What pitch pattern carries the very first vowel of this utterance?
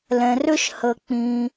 low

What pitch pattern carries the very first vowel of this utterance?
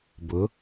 rising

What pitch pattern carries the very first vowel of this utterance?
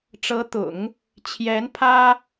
rising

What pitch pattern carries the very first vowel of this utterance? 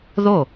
falling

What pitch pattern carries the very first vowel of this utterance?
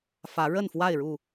rising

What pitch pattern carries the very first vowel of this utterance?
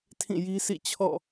falling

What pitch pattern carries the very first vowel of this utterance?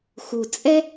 low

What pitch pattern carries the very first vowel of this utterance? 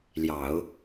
low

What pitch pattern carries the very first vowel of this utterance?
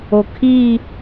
low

